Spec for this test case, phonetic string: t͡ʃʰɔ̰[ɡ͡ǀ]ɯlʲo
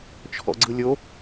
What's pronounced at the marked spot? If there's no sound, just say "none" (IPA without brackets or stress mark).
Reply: ɡ͡ǀ